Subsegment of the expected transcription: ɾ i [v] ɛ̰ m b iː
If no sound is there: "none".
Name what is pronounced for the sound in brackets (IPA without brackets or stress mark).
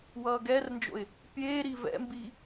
v